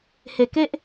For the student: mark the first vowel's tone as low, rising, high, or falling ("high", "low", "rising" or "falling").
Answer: low